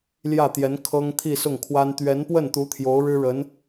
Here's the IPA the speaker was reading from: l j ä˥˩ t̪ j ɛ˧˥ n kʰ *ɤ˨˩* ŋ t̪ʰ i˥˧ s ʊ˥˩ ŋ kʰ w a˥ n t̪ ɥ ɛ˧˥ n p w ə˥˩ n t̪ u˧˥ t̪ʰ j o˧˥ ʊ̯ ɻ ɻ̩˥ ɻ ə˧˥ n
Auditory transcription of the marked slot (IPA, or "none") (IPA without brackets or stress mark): ɤ˥